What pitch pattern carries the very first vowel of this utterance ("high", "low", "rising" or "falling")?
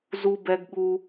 high